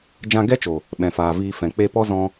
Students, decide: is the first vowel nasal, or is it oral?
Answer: nasal